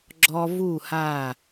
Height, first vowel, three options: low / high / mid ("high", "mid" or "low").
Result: mid